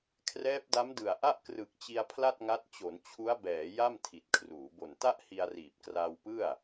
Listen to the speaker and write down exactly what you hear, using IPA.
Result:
kʰ r ɛː˦˥ p̚ d a˦˥ m d ɯ˨˩ a̯ ʔ a˥˩ ʔ k r ɯ˨˩ k̚ t͡ɕ i˧ a̯ pʰ l a˥˩ t̚ ŋ a˦˥ t̚ t͡ɕ o˩˦ n t͡ɕʰ u˦˥ a̯ b ɛː˩˦ j a˥˩ m tʰ i˨˩ t̚ kʰ r uː˩˦ b o˨˩ n t a˥˩ ʔ h i˧ a̯ r iː˨˩ p̚ k r aː˧ w p ɯ˥˩ a̯

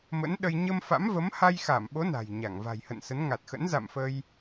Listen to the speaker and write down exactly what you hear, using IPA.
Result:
m ə̰˧˥ n ɗ ə˧ j ɲ ə˧ m f a̰˧˥ m v ə˨˦ m h a˧ j x a˧˩ m ɓ o˨˦ n a̤˨˩ j ɲ a˧˩ ŋ v a̤˨˩ j h ə̰˧˨ n s ə˨˦ n ŋ a˨˩ t̚ x ə̰˧˥ n z a̰˧˨ m f ə˧ j

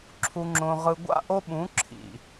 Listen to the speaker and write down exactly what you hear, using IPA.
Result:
ǁʰ u˨ ŋ͡ǁ õ˨ ʁ ɯ˨ ɡʷ a̰˦ ʔ o˦ ɓ ũ˨˦ ǁʰ ḭ˨

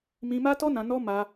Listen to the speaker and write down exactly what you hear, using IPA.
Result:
m ĩ˧ m a˦ t ɔ˦ n ã˧ n ɔ˦ m a˧

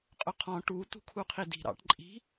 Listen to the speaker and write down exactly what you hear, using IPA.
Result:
qʼ ʊ qʰ ɔ̃ ʈ u t ṳ kʰ u qʰ i d i̤ ɾ ɑ̰ ʈ ǃʼ i̤

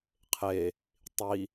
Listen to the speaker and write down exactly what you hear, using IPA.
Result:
qʰ e | tˤ i

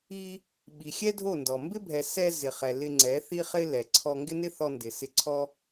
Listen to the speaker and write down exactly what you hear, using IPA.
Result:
i˧ | ɓ i˨ xʲ ɛ˦ dʱ o˦˨ n d ɔ˨ m b ɪ˦ bʱ ɛ˨ s ɛ˧ z ɪ˨ χ ɛ˨ l ɪ˧ ŋ͡ǀ ɛ˨˦ θ i˧ χ ɪ˧ l ɛ˨ ǀʰ ɔ˧ ŋ ɡ ɪ˦ n ɪ˦ θ ɔ˧ n d ɪ˨ s ɪ˧ ǀʰ ɔ˦

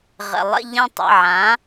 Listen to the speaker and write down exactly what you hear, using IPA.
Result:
ʁ ə̰˩ lˠ ə̰˥˧ ʎ ə̃˥˧ tˤ ə̰˩˧˩ ʕ ã˩˥

